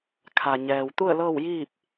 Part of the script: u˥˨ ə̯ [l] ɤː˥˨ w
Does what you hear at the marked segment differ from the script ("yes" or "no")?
no